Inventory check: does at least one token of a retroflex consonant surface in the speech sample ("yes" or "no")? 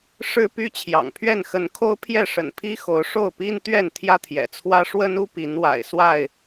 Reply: yes